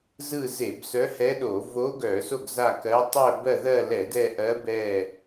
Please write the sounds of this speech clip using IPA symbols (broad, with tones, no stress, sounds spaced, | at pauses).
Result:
z ɯ˦˨ z e˧˩˧ b s œ˧˥ h ɛ˧˥ ɗ o˧˩˧ v o˧˥ ɡ œ˧˩˧ s o˦˨ ɡ z a˦˨ k ɜ˧˥ tˤ œ˦˨ b ɜ˦˨ ð ɜ˦˨ l ɛ˧˩˧ d ɛ˦˨ ʔ ɜ˧˥ b ɛ˦˨